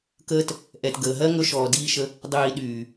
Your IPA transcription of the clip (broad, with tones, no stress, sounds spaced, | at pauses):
k əː˦ t | ʔ ɛ˨ t ɡ əː˨ ɦ ɜ˦ ŋ ɵ˧ ʃ ɔː˨ d iː˧ ʃ ə˧ | dˤ iː˨ ɗ yː˨